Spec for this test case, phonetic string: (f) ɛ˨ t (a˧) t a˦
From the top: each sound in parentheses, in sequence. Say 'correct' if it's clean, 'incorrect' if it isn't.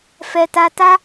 correct, correct

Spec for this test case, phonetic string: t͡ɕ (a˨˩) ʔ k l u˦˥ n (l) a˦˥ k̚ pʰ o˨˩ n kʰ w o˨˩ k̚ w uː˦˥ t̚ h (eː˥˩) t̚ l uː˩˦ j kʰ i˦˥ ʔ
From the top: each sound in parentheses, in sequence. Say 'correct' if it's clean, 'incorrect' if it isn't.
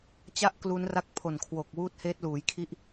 incorrect: a˦˥, incorrect: r, incorrect: eː˦˥

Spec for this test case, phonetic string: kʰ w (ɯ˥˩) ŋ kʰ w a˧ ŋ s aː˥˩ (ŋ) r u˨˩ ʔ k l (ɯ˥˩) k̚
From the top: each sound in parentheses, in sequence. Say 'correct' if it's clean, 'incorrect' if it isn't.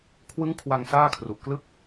incorrect: ɯ˦˥, incorrect: kʰ, correct

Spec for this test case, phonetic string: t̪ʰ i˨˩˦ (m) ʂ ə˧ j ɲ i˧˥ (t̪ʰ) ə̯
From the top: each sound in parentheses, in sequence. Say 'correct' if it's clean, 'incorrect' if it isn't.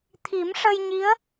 correct, incorrect: none

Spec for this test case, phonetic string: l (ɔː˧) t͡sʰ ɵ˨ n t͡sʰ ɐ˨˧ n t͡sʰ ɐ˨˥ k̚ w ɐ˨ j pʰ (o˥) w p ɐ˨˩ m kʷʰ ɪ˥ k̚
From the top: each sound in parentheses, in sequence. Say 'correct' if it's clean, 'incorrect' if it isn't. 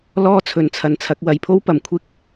incorrect: ɔː˥, correct

